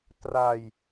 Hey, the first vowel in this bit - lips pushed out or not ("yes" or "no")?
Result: no